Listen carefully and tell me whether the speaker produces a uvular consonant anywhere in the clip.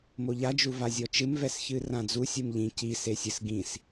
no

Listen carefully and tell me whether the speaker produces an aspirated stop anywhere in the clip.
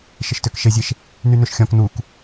no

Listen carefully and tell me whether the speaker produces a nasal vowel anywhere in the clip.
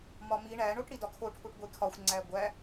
no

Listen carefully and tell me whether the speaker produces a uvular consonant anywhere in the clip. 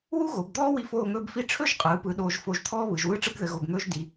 yes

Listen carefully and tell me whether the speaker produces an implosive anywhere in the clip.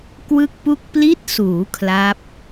no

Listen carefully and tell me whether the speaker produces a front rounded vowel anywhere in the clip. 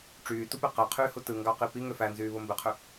yes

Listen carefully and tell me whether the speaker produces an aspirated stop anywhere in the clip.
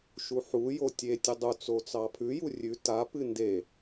yes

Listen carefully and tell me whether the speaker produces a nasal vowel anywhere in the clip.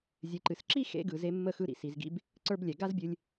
no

